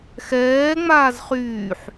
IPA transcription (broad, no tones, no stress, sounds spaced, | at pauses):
x ɛː ŋ͡m aː z χ yː ħ